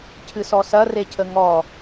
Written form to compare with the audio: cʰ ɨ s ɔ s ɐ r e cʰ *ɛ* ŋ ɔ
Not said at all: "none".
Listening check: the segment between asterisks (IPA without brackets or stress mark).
ə